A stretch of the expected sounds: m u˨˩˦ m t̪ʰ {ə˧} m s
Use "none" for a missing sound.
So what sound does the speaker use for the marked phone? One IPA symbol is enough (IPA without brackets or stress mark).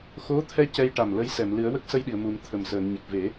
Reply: ə˨˩